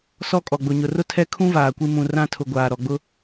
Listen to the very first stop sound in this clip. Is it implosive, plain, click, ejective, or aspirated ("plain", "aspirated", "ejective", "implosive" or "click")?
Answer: ejective